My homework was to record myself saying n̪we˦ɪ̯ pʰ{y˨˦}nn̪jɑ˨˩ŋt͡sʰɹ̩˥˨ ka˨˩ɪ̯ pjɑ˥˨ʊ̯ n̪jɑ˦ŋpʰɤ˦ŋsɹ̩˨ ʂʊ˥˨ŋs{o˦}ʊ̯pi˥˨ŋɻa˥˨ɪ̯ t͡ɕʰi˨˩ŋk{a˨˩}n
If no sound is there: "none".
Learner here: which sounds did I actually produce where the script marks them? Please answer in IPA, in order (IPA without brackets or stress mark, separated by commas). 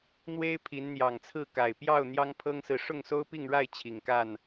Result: i˨˦, o˦, a˥˨